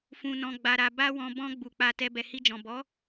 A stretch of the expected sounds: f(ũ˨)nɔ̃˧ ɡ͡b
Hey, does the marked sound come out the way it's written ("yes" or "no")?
no